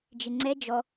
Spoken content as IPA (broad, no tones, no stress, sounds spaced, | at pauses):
d͡ʒ ɪ ŋ͡ǀ ɛ d͡ʒ ɔ